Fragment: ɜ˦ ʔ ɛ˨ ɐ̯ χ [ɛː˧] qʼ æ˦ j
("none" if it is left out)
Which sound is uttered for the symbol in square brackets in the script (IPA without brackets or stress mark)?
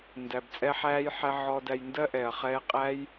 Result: ɛː˧